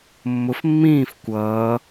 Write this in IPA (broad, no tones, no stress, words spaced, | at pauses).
mːʊf mːĩːf kʷʌː